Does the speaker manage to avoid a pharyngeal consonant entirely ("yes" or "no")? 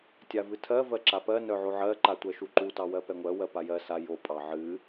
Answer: no